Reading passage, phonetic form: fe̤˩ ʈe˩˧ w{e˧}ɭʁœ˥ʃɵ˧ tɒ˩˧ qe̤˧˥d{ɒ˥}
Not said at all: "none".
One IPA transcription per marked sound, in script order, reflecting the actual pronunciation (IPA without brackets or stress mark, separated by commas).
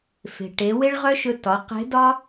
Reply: e˥, ɒ˥